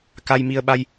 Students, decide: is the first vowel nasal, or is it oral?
oral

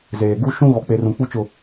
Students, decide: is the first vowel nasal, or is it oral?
oral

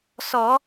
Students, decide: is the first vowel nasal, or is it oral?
oral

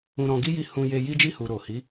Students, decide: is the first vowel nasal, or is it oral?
nasal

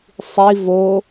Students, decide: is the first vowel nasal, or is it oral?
oral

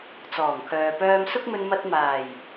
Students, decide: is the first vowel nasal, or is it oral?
oral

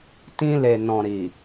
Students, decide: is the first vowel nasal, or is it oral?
nasal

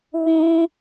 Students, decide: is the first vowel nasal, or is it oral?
nasal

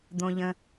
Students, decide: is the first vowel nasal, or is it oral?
nasal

